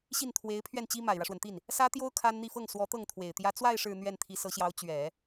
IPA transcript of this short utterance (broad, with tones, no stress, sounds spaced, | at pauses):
ɕ i˥˩ n t̪ʰ w e˧˥ ɪ̯ pʰ ɥ ɛ˥˩ n t͡ɕ i˥ m a˨˩ ɪ̯ ɻ ä˦ ʂ w ə˩ n t̪ i˥˩ n | s ä˥ t̪ j o˥ ʊ̯ kʰ a˥ n n̪ i˥˧ f ɤ˥˩ ŋ s w ɔ˧˥ t̪ ɤ˥˩ ŋ t̪ʰ w e˨˩ ɪ̯ t̪ j ä˥ t͡s w a˥˧ ɪ̯ ʂ ɻ̩˥˧ n̪ ɥ ɛ˥˩ n t̪ʰ i˧˥ s ɤ˧˥ ɕ j ɑ˧˥ ʊ̯ t͡ɕ ɥ ɛ˨˩˦